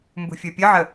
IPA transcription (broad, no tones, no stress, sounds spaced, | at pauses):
m b ṳ fʲ ə˞ pʲ ə ʕ ə